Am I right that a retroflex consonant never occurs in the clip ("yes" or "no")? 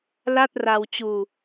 yes